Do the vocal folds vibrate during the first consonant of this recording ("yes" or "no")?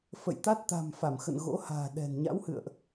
no